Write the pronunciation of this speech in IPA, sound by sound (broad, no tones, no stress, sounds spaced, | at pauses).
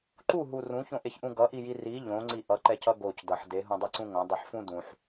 ǃ u ɦ u r ũ ç õ ʔ e ç ʔ ũ ɡ ʌ ʔ i j i r i ʎ õ ŋ͡ǀ i ʔ ʌ ǃ ɛ c ʌ ɡ o c d ʌ ħ d e ɦ ũ dˤ ɛ ǀ ũ ŋ õ dˤ i ħ f ũ d ũ ħ